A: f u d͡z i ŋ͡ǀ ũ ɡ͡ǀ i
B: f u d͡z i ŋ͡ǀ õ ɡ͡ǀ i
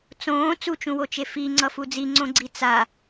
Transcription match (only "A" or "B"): B